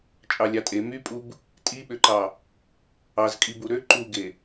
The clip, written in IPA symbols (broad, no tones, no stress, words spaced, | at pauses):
t͡ʃʼɑlʲɑtʼe mypʼub | tʼiɓøǃɑ | ɑzkʼibu ɾø ǃuɡe